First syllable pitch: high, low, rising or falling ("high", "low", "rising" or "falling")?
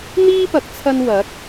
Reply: high